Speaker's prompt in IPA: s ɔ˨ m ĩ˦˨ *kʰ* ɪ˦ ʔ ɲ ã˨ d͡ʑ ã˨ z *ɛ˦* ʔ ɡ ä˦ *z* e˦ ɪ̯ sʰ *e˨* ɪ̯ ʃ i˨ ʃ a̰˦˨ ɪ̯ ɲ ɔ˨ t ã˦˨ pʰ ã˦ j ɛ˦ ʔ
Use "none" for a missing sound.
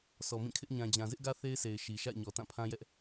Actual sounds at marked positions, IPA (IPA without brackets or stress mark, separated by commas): kʰ, ɪ˦, θ, e˨